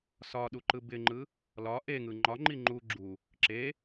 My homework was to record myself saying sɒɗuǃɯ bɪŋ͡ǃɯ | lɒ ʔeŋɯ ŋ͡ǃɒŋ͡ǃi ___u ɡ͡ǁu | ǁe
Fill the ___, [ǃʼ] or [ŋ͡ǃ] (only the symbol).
ŋ͡ǃ